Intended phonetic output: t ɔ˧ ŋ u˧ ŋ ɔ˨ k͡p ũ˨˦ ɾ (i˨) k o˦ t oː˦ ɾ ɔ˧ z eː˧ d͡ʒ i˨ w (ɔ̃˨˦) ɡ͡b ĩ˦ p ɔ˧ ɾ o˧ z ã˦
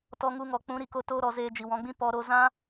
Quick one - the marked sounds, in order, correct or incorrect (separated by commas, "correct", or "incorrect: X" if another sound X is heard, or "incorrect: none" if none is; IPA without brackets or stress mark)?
correct, correct